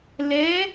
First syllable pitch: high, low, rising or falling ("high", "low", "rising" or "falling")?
rising